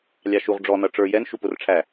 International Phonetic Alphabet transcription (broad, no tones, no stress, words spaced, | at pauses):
lʲɑʃuʁ ɖ͡ʐɔ nʌʈ͡ʂə˞ jɛn ʃupʊrʈ͡ʂʰæ